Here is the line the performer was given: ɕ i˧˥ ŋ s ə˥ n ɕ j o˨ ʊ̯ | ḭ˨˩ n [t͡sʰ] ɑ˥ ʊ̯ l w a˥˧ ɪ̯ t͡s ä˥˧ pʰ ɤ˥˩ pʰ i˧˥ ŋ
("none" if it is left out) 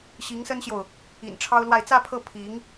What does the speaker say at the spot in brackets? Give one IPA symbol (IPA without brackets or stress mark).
ʈ͡ʂʰ